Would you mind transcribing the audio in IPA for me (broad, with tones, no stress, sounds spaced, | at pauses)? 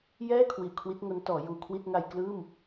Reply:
j ɛː˥˩ kʰ w i˨˩ ʔ kʰ w i˦˥ t̚ ŋ o˦˥ n t ɔː˩˦ j uː˨˩ kʰ w i˥˩ t̚ ŋ a˧ j k l ɯː˥˩ m